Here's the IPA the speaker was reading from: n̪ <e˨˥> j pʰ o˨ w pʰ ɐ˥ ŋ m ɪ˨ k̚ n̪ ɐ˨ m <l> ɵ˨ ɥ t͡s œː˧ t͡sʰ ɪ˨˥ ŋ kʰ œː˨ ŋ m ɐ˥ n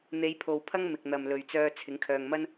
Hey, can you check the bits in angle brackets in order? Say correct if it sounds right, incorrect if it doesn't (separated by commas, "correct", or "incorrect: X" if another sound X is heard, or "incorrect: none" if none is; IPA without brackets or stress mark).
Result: incorrect: e˨˧, correct